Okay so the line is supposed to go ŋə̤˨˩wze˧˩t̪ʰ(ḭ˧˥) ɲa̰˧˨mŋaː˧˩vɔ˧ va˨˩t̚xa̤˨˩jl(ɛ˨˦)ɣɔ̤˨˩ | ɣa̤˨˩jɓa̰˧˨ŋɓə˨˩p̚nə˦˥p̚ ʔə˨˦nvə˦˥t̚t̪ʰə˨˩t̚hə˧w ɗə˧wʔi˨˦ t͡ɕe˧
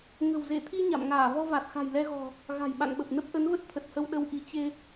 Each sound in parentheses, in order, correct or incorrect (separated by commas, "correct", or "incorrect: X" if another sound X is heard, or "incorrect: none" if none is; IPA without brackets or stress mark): incorrect: i˧, incorrect: ɛ˧